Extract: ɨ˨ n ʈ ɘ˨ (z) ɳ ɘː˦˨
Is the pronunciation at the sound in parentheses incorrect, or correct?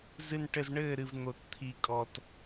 correct